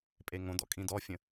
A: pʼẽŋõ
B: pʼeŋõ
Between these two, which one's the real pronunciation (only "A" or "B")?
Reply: B